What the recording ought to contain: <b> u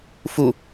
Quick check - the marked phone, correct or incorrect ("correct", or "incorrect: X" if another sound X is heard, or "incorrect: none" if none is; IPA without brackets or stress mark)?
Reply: incorrect: f